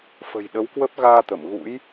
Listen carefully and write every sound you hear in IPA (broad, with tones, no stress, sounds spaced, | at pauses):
f ə̤˨˩ j ɗ ə˨˦ w k w ə˦˥ p̚ ɣ aː˧ t̪ ə˧˩ m ɣ ṵ˧˥ j